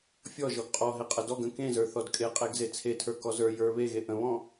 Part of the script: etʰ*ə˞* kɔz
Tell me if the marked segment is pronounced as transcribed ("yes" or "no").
yes